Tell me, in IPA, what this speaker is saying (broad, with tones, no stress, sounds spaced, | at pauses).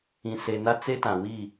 ĩ˨ s e˨ n a˦ t͡s e˦ t ã˨ w i˦˨